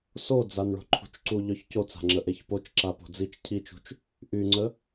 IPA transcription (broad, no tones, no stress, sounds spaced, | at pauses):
s o d͡z a n ɭ o̤ ǃʰ ṳ t͡ʃ ǀ u ʎ œ ç c o t͡s a̤ ŋ͡ǁ ə ʔ e ç p o t͡ʃ ǁ a p o̤ d͡z i t͡ʃ cʰ i t͡ʃ ṳ t͡ʃ | ʔ y ŋ͡ǀ ə